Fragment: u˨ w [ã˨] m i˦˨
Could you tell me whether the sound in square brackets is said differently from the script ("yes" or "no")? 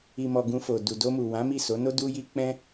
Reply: yes